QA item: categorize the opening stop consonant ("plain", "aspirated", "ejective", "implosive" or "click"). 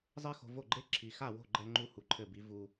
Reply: click